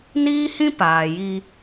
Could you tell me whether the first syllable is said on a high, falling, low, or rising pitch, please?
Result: high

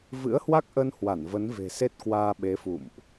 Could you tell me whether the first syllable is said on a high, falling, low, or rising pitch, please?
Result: rising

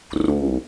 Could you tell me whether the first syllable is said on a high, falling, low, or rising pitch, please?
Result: low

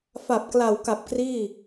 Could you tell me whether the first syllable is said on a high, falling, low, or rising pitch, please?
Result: low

